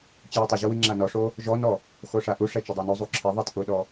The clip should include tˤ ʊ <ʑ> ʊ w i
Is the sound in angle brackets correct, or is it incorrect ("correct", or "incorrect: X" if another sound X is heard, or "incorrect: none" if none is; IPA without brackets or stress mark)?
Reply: correct